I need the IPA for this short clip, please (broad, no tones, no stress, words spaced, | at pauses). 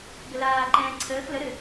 ɡəlaːǃɛ̃ː ǀʰəːx ləɾɘ